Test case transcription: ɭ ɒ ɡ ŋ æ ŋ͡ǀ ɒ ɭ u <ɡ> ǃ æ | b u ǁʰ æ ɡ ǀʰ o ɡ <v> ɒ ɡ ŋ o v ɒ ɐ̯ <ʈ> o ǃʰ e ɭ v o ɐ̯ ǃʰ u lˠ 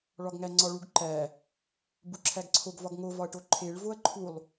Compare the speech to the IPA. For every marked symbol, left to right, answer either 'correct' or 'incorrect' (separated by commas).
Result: correct, correct, correct